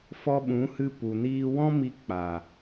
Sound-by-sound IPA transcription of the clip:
f ɔ˧ ɓ ũ˨˦ h ɨ˧ p u˨ n iː˧ w ɔ̃˦ m i˧ k͡p a˨

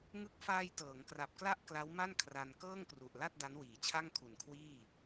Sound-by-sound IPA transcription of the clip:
ŋ ɯ˦˥ k̚ f aː˧ j t ɤː˩˦ ŋ k r a˨˩ p̚ k l a˥˩ ʔ k l a˦˥ w m a˥˩ n kʰ r a˧ n k ɤː˥˩ ŋ k r u˨˩ ʔ l a˥˩ t̚ d a˦˥ n w iː˩˦ t͡ɕʰ a˥˩ ŋ kʰ u˨˩ n kʰ w iː˥˩

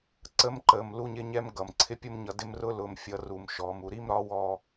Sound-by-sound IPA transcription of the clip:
ǀ ə˦ m ǃ əː˨ m l u˦ ɲ ɪ˦ ɲ ɛ˦ m ɡ ʌ˨ m ǀʰ ɪ˦ pʲ ʊ˦ m ɲ ʌ˨˦ d ɪ˦ m r ʊ˦ l ʊ˨ m fʲ ʌ˨ r u˨ m ʃ ɔː˨ m u˨ ɾ i˦ m ɾ ɒ˨˦ w ɔː˦

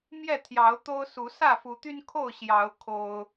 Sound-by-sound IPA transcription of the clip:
m j ɛ˥˨ t̪ʰ j ɑ˨˦ ʊ̯ t̪ o˦ ʊ̯ s u˨˦ s ä˥˨ f u˨˦ t̪ y˦ n kʰ o˥˨ ʊ̯ ɕ j ɑ˨˦ ʊ̯ kʰ o˦ ʊ̯

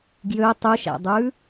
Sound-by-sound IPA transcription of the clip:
ɡ j ø tˤ ʉ ʃ æ̰ dˤ ʉ

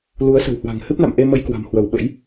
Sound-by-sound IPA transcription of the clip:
l u˨˦ ə̯ s ə̤˨˩ w h w a̤˨˩ ŋ h ɨ˦˥ p̚ n a̰˧˨ m ʔ e˧ m ə˧ j k w a̤˨˩ m h w ə˧˩ w ɓ ə̰˧˥ j

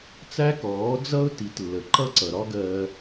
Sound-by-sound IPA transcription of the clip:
t͡s æ˥ k ɔː˩˥ d͡z ʌ˥ ʊ̯ t i˩˥ t lː ə˩ ǃ ʌ˥ ǀ ʌ˩ ɾ ɒ˥ ɡ ɜ˧

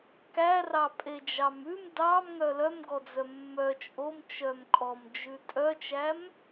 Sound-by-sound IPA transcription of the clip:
k æ r ɑ pʼ e d͡ʒ ɑ m ʉ m d ɑ m ŋ œ l œ m ɡ ɔ d͡z œ mː œ t͡ʃʼ o m t͡ʃ œ m kʼ ɔ m d͡ʒ ʉ tʼ œ t͡ʃ æ m

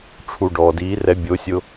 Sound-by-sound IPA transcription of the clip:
ʈ͡ʂʰ u˨ ɖ ɔː˨ d iː˨˦ r ɛ˧ bʲ o˨˦ sʲ ʊ˧

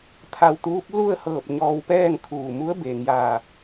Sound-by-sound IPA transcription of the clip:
t̪ʰ a˧˩ w t̪ uː˧˥ p̚ l u˥˨ ə̯ h ɤː˧˩ p̚ ɲ ɔː˧ w p ɛː˥˨ ŋ kʰ uː˧˩ m u˧˥ ə̯ b eː˩ ŋ j aː˧˩

